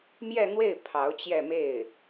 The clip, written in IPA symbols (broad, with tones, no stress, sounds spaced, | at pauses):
m j ɛ˥˧ n̪ w e˥˩ ɪ̯ pʰ ɑ˧˥ ʊ̯ t͡ɕ j ɛ˥˧ m e˥˩ ɪ̯